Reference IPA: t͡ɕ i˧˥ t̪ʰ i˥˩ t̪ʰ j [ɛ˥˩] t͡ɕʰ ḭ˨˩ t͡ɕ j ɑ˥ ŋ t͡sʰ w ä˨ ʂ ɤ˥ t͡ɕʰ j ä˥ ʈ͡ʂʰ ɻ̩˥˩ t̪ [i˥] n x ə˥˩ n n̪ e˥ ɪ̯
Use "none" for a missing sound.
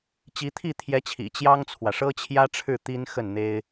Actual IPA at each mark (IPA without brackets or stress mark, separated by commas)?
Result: ɛ˧˥, i˥